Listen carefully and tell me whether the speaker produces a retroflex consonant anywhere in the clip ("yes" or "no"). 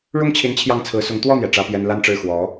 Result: yes